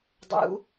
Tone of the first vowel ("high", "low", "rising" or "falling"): rising